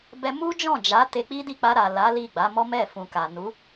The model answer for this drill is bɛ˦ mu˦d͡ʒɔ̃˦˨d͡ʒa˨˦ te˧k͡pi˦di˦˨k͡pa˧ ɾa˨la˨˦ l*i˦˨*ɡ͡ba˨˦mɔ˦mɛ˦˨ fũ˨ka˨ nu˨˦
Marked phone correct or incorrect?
correct